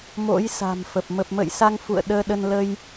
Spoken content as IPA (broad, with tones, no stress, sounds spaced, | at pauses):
m o̰˧˥ j s a̤˨˩ m f ə˨˩ p̚ m ə˨˩ p̚ m ə̰ː˧˨ j s a˧ ŋ f ṵ˧˨ ə̯ ɗ əː˧ ɗ ə˧ n l ə˧ j